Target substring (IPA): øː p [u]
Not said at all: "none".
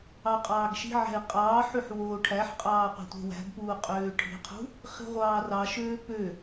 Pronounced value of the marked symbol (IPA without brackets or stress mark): ø